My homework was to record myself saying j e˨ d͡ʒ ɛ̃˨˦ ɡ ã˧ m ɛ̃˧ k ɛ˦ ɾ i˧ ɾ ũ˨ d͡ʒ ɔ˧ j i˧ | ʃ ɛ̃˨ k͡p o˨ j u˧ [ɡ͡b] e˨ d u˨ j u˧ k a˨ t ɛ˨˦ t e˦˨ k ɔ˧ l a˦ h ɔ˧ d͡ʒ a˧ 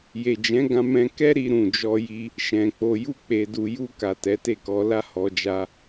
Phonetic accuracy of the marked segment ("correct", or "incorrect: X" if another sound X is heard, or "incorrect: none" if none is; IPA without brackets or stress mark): incorrect: k͡p